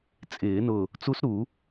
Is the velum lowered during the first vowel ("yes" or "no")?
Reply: no